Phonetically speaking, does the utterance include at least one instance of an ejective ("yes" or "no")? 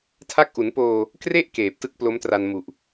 no